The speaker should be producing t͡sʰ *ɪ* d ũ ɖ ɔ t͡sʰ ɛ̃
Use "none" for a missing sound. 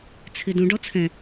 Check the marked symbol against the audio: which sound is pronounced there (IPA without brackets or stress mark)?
ɪ